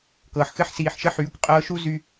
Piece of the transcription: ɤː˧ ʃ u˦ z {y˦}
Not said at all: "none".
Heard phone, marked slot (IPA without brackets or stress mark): y˦